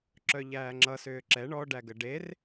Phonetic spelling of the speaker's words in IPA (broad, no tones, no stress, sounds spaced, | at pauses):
ǁ œ ʎ æː ŋ͡ǁ ʌ s ʏː ǁ ɛ ɳ ɔ ɖ æ ɡ ə ɖ e r